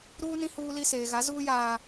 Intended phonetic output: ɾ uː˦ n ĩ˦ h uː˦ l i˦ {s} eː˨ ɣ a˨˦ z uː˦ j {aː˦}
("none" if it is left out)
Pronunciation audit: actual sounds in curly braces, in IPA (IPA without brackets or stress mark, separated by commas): s, aː˨